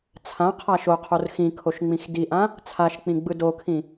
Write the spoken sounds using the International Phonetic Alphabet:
t͡sʰãqʰa ʃoqʰor xĩkʰoʃ ŋ͡mĩxdiʔã | t͡sʰaʃk͡pĩ ɡ͡bɯdokʰĩ

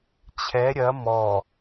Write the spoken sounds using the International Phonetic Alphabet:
t͡ɕʰɛ ɾʲɐ mɔ

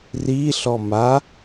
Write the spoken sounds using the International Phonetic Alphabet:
riɬɔ ma

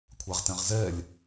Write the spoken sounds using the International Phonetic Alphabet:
kʷʰaʁtɛ̃ʁzɛlʲ

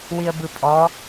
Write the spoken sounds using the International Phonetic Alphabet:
wiə̯bɯpʼɔ

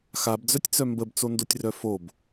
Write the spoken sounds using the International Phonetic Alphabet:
xabd͡zœtʲt͡sœ mbəbt͡sondotʲrœ fob

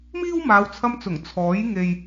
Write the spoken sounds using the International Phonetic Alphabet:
miː˥wmaː˨˧wt͡sʰɐ˧mt͡sʊ˨˩ŋ t͡sʰɔː˨˥j ŋe˨j

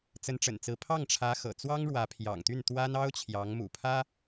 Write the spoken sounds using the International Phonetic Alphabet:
t͡sə˧˥nʈ͡ʂə̰˨˩nt͡sɹ̩˧˥ pʰɑ˥˩ŋʈ͡ʂʰä˧˥ xɤ̰˨˩ t͡swɑ˥ŋɻwä˧˥pʰjɑ̰˨˩ŋt̪y˥˩n t̪wa˥n ɑ˥ʊ̯t͡ɕʰjɑ˧˥ŋ mṵ˨˩pʰä˥

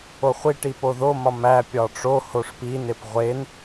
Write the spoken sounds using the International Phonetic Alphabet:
oχʷiʈi poðomɒ mæpʲɒ ʈ͡ʂohoʂ pinep ʁʷen

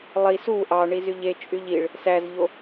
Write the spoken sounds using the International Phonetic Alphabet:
lˠis u ʔɑɳiz yʎet͡ʃʼyʎ iɭ | sæzʎo

